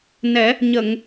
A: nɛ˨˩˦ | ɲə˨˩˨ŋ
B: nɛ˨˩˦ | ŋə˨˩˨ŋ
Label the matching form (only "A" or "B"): A